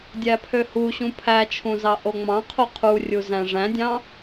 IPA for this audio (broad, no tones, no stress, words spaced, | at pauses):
dʲæpʰøhuɕũ pʰæt͡ʃʰũ zɑʔoŋ͡mɑ̃qʰo qʰurʲu zæ̃ʐæ̃dʲɑ̃